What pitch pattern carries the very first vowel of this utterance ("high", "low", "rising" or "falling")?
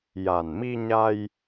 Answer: low